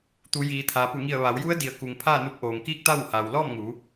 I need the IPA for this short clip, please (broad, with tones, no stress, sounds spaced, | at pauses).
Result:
t̪ u˩˧ j iː˩ t̪ʰ aː˩ p u˧˩ ŋ i˧˩ ə̯ ʋ a˩˧ w j u˧˥ ə̯ d i˩˧ ə̯ k u˩ ŋ pʰ aː˥˨ n u˧ p̚ ʔ oː˩ ŋ k iː˥˨ k̚ t̪ a˥˨ w h a˩ w l ɔː˥˨ m ŋ uː˩˧